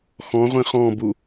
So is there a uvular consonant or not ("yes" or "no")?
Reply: yes